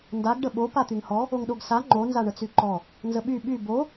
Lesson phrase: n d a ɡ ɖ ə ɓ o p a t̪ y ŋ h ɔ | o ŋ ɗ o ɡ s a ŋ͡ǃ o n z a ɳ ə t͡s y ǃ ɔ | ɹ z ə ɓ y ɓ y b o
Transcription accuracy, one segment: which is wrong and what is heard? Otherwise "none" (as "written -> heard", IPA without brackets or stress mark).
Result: ɹ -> n